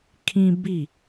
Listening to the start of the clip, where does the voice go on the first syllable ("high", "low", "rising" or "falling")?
high